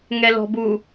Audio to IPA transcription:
ŋ ɛ l ɔ̤ b u

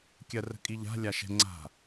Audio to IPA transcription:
kʲ ɜ r ə̤ kʼ i ʎ a̤ lʲ a ʃ ɛ̤ ŋ͡ǀ a̤

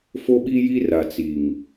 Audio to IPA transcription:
f o˦ ɓ i˦ j i˦ r a˨ t͡s i˨ ŋ

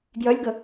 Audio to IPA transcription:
ɡ j œ lʲ ɡ ə

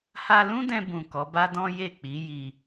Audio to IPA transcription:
h a˧ l ũ˦ d ɛ̃˧ b ũ˨ k ɔ˨˦ b a˦ d ɔ̃˦ j e˦˨ k͡p i˨˦ j i˧

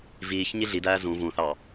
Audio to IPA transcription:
v iː ç ɲ i ɮ i d æː z ũ v ũ θ ɑ

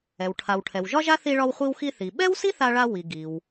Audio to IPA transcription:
ɛ˩ w ʈʰ a˩ w ʈʰ ɛ˩ w ʒ ɒ˥ ʒ a˥ θ i˧ ɭ ɒ˧ w χʷ i˧ w x i˧ θ i˩ ɓ ɛ˥ w s i˥ θ a˧ ɭ a˧ w i˩ ɡ i˩ w

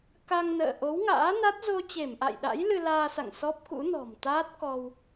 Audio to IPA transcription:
k a˧ ŋ n ə̰ː˧˨ ʔ o˨˦ w ŋ a̰ː˧˥ n a˦˥ t̚ z o˧ t͡ɕ e˧˩ m ʔ a̰˧˨ j ɗ a̰˧˥ j l ɨ˧ l aː˧ s a̰˧˨ ŋ s ɔ˦˥ p̚ k ṵ˧˥ n ɔ̤˨˩ m t̪ aː˦˥ t̚ k ɔ˧ w

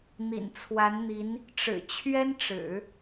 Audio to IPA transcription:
n̪ ḭ˨˩ n t͡sʰ w a˧˥ n n̪ i˧˥ n | ʈ͡ʂ ɻ̩˨˩ t͡ɕʰ ɥ ɛ˥ n ʈ͡ʂ ɻ̩˨˩˦

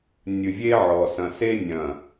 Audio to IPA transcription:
nʲ ɨ˨ vʲ e˦ ʕ ɔ˨ s ɐ̃˨ s e˦ nʲ ɐ̃˨

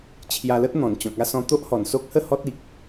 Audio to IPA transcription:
t͡ɕʰ j a˧ l ə˦ t̚ n̪ ɔ̃˨˩ n t͡ɕ ɔ̃˨ k̚ a˥˧ s ɔ̃˧ t̪ o˦ ʔ h ɔ˨˩ n s o˦ k̚ h ə˥˧ h ɔ˦ t̚ i˨ k̚

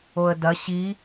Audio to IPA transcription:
o ə̯ d ɐ ɕ i

